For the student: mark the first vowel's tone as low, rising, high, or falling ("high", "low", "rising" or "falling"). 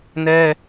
high